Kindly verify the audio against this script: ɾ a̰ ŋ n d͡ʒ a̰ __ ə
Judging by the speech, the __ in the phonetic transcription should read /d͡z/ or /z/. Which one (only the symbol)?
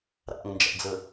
d͡z